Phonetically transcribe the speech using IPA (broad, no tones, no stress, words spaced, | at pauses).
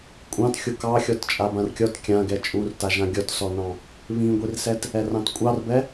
kʷʼɑ̃t xʲokɑ xʲɔtt͡ʃʼabãrkʲɔt kʲãɡɛ t͡ʃʼurta ʒãɡʲɔtsɔnɑ̃ | βĩɡʷirsɛt | ɛrɑ̃tkʷʼɑrbɛ